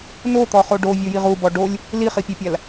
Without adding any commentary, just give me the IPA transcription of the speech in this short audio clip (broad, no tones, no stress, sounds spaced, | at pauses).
n o t̪ ɔ χ o ɖ o vʲ o j i ʁ u b ɔ ɖ o lʲ | l i χ i pʲ e pʲ a l